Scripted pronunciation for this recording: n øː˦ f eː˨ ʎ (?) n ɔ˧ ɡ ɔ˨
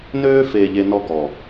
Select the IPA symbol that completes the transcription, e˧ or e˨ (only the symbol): e˧